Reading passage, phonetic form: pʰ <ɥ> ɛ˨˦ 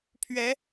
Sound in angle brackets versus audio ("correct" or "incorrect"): correct